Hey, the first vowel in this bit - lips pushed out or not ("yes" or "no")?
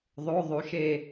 yes